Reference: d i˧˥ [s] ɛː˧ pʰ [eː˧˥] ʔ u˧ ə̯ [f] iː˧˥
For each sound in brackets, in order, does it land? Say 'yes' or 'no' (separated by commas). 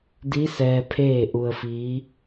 yes, no, yes